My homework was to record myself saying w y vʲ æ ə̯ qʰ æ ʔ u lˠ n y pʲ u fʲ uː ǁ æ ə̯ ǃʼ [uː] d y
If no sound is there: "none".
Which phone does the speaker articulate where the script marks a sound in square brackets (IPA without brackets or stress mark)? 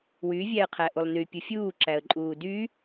uː